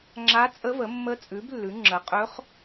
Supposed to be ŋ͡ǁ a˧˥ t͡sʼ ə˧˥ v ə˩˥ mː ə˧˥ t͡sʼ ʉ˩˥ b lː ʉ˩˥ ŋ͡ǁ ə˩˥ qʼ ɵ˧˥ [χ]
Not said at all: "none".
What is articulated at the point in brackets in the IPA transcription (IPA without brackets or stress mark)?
χ